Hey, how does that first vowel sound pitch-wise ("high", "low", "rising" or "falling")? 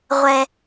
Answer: low